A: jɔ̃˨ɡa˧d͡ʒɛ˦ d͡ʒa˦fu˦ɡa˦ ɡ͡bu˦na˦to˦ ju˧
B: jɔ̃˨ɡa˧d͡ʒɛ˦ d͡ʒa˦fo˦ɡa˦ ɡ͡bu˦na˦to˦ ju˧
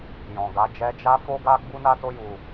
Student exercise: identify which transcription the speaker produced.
B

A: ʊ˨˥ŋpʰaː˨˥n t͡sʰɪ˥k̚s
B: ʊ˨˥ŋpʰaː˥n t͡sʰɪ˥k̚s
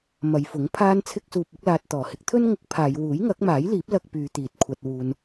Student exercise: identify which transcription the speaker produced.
B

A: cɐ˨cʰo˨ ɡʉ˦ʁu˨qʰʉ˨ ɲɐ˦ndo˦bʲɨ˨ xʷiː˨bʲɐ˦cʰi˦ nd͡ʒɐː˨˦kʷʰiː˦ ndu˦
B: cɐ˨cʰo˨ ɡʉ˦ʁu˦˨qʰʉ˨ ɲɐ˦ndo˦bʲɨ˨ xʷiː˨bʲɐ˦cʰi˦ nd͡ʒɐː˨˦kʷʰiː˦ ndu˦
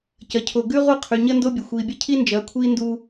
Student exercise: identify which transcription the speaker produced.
B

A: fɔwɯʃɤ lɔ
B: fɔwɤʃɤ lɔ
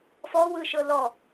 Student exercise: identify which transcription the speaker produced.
A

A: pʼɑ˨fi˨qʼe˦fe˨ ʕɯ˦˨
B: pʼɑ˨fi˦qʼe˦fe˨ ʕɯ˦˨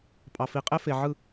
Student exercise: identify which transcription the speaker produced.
A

